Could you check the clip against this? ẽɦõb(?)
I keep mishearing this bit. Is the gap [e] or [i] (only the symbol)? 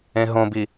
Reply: i